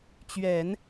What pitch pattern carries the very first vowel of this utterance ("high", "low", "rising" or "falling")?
low